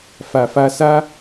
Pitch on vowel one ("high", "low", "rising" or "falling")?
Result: low